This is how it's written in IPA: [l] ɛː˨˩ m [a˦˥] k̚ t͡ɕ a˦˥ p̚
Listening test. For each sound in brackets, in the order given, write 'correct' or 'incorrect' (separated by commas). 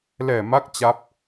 correct, correct